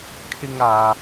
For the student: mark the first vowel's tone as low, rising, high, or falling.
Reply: high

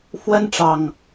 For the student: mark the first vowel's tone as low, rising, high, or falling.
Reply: high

